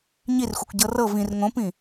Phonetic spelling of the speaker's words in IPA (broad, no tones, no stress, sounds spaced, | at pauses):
ɲ i r xʷ ɛ kʷ ɟ ɤ r ɤ v ĩ r ŋ õ p ĩ